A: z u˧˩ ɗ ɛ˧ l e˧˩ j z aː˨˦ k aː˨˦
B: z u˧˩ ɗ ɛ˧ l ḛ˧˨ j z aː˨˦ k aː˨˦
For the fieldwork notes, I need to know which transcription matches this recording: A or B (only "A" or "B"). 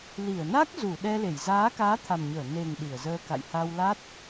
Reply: A